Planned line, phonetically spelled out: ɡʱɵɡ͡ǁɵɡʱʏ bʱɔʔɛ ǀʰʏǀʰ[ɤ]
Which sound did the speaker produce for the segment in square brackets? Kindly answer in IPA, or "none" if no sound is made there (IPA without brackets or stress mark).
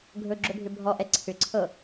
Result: ɤ